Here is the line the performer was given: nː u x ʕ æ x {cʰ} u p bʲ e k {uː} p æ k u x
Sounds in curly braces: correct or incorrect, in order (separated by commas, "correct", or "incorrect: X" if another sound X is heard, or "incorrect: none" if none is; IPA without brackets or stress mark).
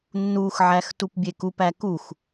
incorrect: t, incorrect: u